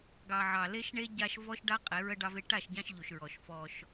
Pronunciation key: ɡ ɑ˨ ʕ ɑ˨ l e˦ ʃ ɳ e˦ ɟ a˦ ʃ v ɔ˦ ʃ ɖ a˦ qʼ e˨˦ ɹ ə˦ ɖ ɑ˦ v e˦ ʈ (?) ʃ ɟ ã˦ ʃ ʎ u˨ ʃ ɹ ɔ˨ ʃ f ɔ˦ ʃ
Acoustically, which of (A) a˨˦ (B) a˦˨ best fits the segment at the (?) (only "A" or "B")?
B